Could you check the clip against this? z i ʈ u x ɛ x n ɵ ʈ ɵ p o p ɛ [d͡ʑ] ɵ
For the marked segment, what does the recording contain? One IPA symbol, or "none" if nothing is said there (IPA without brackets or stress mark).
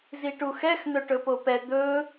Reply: d̪